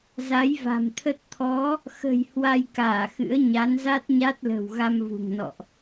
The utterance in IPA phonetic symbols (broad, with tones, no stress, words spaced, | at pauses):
za˨˦jva̤˨˩mt̪ʰə˦˥t̚ t̪ʰɔ˨˦ | xə̤˨˩j hwa˧jkaː˧˩xɨ̰˧˥ə̯ ɲa˨˦nza˦˥t̚ɲa˦˥t̚lə̤˨˩w ɣa˧mvṳ˨˩ŋnɔ̰˧˨ʔ